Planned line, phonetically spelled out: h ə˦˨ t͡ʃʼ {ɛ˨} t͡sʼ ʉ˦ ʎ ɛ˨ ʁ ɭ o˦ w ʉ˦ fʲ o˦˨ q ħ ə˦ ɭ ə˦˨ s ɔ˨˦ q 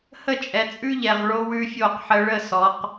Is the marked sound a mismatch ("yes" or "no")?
no